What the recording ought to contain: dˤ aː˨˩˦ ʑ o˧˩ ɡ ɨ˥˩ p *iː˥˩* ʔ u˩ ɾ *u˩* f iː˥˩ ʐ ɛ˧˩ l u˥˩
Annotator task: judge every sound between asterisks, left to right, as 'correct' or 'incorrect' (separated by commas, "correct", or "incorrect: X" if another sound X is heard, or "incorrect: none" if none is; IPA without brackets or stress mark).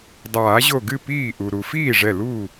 correct, correct